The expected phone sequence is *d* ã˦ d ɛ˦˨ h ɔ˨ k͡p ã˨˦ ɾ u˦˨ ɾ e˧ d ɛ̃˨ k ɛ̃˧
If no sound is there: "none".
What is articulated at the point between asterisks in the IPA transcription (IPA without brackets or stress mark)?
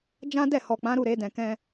d͡ʒ